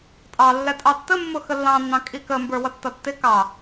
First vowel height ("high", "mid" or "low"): low